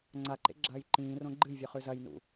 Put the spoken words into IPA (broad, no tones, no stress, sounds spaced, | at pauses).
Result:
ŋ͡ǀ a ǃ ḛ ɡ͡ǁ ɐː j ǃ ĩː r õ ɡ͡ǃ ɨ j vʲ ɵ χ ʉ z ɐ j n ṵ